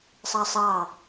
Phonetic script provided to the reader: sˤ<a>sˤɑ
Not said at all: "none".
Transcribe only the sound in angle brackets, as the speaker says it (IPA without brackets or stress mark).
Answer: ɑ